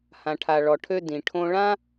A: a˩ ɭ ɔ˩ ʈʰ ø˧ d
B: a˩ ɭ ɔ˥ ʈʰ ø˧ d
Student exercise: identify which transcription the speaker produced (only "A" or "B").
A